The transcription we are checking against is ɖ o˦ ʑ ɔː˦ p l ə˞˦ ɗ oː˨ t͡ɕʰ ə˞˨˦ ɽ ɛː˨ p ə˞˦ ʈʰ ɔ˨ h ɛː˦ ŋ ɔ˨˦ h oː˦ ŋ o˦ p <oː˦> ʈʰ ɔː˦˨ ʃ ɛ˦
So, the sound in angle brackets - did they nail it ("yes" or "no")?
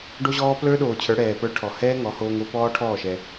no